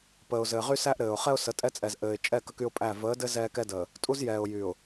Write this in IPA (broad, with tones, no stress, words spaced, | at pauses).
pəː˨ʊ̯zɘː˨ ʁy˦sæ˦ʔ ɾɘː˨ʊ̯χɛ˦ʊ̯ sə˨˦tʼɛ˦t͡sʼɛ˨z ʔɘː˨ɪ̯ t͡ʃʼɛ˦˨ kə˦ky˦ʊ̯pʼæ˦˨ vəː˨˦dɘ˦ zɛː˦kɛ˦dəː˨ | tʼu˦zjɛː˨ʊ̯ jy˨ʊ̯